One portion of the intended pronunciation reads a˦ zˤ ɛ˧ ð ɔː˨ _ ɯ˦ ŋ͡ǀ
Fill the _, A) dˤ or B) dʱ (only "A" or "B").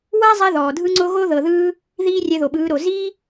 B